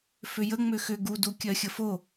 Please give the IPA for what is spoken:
f ʏ j ə ŋ͡m ʏ x ʏ ɡ u d u kʲ ɜ xʲ ə f o

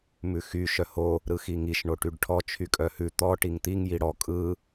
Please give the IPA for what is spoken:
m ʉ x y ʃ œ h o | ɾ ɯ x i ŋ i ʃ ɳ o ʈ y ɖ ʈʰ ɔ t͡ʃʰ y kʼ œ h ʉ t̪ ɔ ʈ i ŋ t̪ i ŋ j i ɽ ɔ kʼ ɯ

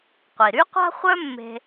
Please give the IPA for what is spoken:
qʷ i˩ ɾ y˥ qʷ a̤˥ χʷ œ˥ mː e̤˧

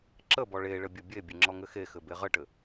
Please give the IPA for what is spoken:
ǁ ə b ɔ ɭ e ɭ ɘ bʲ ɘ bʲ e bʲ ɘ ŋ͡ǁ ɔ ŋ ɘ x e x ɘ b e ʁ ə ʈ ɘ

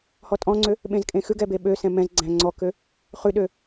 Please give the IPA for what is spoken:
h ɔ tʼ ɔ̃ ŋ͡ǀ ø | ɓ ẽ z kʼ ẽ x ʉ ɡ ɛ b e ɓ ø s ɛ̃ m ɛ̃ z ɡ͡ǀ æ̃ ŋ͡ǀ ɔ k ø | χ ʉ ɗ ø

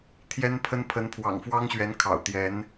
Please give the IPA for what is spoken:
t̪ʰ j ɛ˥ n pʰ ə˥ n pʰ ə˧˥ n pʰ w ɑ̰˨˩ ŋ f w ɑ˥ ŋ ɕ ɥ ɛ˧˥ n kʰ ɑ̰˨˩ ʊ̯ t̪ j ɛ˧˥ n

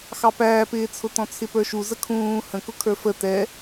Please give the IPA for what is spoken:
x ɑ p æː p ɪː t͡sʰ ʊ t ɔ̃ t͡sʰ ɪ p ə˞ ʃ u z ə kʰ ũː h ə̃ k ʊ kʰ ə˞ f ə t ɛ

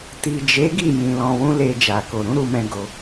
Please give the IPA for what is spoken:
t i˨ d͡ʒ e˨˦ ɡ i˦˨ j ĩ˧ l ɔ̃˧ w ũ˦ l e˧ d͡ʒ a˨ k o˨ ɾ ũ˨˦ ɾ u˧ m ɛ̃˧ ɡ o˧

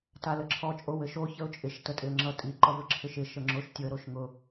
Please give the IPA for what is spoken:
t a l ə ǁʰ ɔ t͡ʃʼ o w ɘ ʃ o ç ə ʊ̯ t͡ʃʼ ɪ ʃ t ə tʼ ɪ ə̯ ŋ͡ǁ ʌ tʼ i ǃ ʌ v ɘ ǁʰ ɪ ʃ ɪ ʃ ə ŋ͡ǁ o ʃ tʲ ʊ ə̯ ɾ o ʃ ŋ ʊ

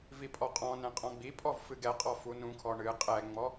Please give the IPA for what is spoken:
v i pʼ ɔ qʼ ɔ̃ n ɛ̃ qʼ ɔ̃ ɡ͡b i pʼ ɔ v f ɨ ɡ ɛ qʼ ɔ f u n ũ kʰ ɔ ɳ ɨ qʼ ɛ ŋ͡m ɔ

